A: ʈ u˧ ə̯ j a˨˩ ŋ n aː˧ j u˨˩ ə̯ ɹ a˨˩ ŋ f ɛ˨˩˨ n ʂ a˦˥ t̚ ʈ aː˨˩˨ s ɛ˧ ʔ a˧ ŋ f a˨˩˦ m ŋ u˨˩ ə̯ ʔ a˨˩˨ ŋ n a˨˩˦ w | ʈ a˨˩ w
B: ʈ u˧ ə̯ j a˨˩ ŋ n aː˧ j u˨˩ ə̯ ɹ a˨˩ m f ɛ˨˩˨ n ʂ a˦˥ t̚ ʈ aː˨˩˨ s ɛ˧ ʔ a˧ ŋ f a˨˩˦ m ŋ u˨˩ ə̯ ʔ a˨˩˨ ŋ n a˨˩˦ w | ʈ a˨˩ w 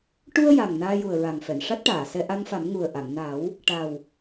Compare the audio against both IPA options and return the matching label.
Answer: A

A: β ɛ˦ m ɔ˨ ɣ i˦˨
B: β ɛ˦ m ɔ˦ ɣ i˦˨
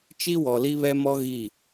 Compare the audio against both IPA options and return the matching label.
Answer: B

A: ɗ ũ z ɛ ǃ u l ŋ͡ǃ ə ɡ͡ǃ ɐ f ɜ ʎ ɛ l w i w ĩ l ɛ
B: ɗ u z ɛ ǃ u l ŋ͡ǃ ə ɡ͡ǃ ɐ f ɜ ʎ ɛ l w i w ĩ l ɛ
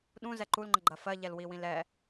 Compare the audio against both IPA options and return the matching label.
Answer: A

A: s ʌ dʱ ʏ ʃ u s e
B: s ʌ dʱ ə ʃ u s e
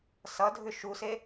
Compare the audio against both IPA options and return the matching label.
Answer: A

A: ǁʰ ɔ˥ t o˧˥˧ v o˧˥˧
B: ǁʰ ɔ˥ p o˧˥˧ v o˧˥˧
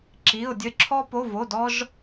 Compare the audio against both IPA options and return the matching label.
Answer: B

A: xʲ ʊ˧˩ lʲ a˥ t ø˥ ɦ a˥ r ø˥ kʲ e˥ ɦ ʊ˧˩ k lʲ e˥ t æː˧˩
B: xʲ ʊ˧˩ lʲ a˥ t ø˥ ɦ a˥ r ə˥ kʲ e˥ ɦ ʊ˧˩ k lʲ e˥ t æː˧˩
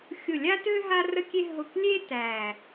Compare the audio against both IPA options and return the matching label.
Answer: B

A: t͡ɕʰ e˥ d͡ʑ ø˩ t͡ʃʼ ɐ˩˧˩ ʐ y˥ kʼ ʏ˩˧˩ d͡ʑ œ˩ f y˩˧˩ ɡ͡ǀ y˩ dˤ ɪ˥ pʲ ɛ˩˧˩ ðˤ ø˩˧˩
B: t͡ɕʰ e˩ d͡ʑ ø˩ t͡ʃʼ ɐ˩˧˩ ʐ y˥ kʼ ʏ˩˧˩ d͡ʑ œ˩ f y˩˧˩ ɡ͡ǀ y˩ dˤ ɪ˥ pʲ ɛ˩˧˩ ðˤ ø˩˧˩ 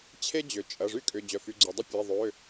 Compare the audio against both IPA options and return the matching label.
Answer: A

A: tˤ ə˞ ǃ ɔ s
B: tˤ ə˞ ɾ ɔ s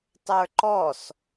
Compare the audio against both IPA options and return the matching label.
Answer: A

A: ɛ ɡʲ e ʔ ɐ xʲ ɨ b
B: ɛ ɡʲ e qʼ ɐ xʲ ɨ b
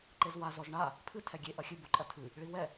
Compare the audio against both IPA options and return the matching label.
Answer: A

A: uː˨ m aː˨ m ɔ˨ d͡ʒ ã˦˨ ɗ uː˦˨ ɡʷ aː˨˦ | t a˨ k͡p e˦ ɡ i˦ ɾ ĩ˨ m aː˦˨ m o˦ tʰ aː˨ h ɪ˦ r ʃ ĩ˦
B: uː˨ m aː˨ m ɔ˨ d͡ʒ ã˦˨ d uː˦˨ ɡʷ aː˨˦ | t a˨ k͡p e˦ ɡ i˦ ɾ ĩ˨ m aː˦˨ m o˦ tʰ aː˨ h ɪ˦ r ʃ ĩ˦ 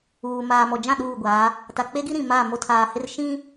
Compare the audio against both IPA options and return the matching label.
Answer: A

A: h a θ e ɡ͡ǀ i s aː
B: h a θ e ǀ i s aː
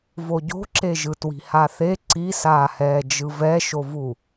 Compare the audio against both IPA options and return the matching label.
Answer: B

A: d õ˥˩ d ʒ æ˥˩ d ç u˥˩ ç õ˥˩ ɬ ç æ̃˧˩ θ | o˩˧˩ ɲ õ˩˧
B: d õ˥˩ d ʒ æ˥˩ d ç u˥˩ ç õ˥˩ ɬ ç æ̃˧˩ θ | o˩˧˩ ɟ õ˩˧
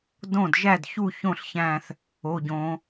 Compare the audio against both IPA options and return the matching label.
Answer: B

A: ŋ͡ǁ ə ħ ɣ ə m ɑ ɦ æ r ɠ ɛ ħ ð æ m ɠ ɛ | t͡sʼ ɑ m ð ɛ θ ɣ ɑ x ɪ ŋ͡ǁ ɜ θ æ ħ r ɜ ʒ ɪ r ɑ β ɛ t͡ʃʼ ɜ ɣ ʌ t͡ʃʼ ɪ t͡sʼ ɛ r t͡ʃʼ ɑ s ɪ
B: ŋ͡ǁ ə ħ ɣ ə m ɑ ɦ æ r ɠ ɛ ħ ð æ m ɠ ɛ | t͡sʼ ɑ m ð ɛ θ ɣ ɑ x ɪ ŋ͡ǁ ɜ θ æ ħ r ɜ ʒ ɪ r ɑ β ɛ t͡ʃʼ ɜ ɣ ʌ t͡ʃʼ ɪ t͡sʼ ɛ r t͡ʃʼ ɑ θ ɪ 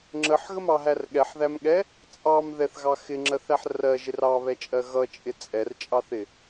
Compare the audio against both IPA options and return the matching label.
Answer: B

